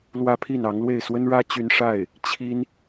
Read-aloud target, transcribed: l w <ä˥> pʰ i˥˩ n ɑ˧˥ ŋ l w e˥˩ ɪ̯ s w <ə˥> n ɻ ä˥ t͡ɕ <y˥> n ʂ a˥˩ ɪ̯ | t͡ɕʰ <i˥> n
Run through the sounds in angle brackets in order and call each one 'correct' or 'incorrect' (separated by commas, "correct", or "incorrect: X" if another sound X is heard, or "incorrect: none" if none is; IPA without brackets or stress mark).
correct, correct, correct, correct